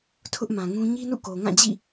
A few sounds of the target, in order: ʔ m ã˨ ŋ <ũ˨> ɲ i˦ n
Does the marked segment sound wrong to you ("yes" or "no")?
yes